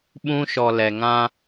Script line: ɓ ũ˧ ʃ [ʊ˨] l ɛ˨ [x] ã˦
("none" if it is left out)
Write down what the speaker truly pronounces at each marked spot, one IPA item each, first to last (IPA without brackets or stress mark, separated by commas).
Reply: ɔ˨, ŋ